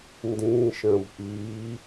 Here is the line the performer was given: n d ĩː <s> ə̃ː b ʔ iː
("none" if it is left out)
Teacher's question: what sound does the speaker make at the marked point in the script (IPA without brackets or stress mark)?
ʃ